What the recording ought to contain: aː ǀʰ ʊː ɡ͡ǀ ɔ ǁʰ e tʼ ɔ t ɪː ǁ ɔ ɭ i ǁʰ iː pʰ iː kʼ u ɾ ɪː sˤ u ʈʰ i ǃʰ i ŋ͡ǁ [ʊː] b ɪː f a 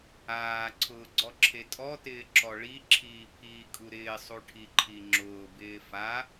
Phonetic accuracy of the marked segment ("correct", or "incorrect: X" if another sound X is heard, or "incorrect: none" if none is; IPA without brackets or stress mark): correct